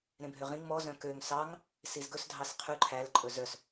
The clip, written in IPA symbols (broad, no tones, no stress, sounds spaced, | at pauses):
ɾ ẽ bʱ ø ʁ ĩ ŋ m ɔ z œ̃ k ø ŋ s ɑ ŋ | s i z ɡ ɵ s dʱ ɑ s qʰ ʉ ǃʰ æ l ǃʼ ɵ z œ s